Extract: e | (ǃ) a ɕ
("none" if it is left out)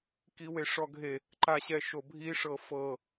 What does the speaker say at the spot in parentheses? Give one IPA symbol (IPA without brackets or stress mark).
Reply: ǃ